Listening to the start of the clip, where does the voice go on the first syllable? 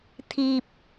low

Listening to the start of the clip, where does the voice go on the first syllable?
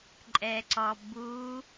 low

